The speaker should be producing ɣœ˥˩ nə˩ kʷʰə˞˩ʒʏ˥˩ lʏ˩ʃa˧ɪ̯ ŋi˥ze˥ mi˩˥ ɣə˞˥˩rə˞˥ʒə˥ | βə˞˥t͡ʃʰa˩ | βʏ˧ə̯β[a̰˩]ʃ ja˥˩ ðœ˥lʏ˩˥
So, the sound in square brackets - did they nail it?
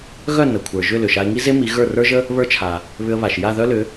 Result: no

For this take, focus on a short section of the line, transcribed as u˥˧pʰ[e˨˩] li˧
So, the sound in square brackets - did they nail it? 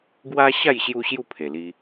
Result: yes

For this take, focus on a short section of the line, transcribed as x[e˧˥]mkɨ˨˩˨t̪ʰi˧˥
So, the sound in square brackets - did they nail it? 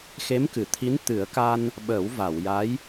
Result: yes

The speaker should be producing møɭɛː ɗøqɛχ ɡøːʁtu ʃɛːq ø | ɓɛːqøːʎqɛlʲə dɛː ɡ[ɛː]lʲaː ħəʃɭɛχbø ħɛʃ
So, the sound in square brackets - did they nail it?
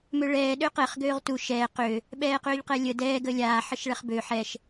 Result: no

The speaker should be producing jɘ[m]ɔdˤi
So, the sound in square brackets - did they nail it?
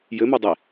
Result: yes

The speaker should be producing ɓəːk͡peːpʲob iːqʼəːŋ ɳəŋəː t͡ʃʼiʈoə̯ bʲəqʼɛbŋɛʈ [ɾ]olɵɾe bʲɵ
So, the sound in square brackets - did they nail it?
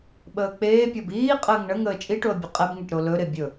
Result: yes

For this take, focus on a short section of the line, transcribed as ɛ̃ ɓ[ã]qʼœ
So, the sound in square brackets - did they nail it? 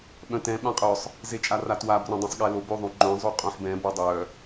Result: yes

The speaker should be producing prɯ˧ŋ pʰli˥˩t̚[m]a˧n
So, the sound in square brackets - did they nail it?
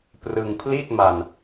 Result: yes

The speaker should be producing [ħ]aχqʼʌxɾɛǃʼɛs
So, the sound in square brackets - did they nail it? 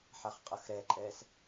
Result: yes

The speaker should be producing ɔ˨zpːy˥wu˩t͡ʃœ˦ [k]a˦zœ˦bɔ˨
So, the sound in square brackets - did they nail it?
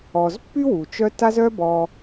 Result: no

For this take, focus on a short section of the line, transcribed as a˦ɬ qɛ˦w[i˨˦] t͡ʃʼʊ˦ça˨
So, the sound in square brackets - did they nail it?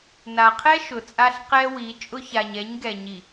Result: yes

